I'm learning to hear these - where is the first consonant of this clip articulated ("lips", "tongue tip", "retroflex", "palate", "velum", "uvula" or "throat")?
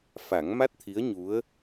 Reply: lips